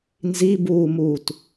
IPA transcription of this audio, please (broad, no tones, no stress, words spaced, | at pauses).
nzibuːmuːt